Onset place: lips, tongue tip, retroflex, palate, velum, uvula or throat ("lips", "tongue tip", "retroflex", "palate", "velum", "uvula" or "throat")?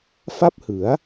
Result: lips